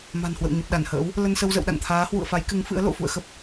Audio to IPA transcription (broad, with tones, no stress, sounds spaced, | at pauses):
m a̤˨˩ n h w ə̰˧˨ w ɲ ə˨˩ p̚ ɗ a˧˩ n h ə̰ː˧˥ w | l ə˧ n s ə˧ w z ə̰˧˨ w ɗ a̰˧˨ n t̪ʰ aː˨˦ h w ṵ˧˨ ə̯ f a˨˦ j k ɨ˨˦ ŋ f ɨ̰˧˥ ə̯ l o̰˧˨ f ṵ˧˨ ə̯ x ə˦˥ p̚